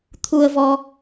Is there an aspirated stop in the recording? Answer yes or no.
yes